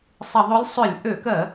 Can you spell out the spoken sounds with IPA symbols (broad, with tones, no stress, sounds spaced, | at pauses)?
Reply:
sˤ ɪ˧˩˧ ðˤ ø˧˥ lʲ sˤ ʏ˧˩˧ lʲ ʔ ø˧˩˧ k ɜ˧˩˧